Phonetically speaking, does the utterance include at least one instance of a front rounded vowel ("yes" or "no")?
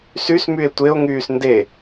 yes